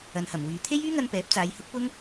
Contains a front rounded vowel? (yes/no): yes